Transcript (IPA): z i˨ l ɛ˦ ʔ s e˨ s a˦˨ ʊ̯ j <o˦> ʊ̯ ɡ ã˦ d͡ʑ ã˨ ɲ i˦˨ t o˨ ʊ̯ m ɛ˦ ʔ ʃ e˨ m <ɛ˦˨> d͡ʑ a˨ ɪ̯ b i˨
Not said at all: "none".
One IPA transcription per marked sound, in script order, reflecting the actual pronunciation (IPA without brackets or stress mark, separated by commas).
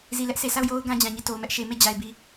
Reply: o˦, e˦˨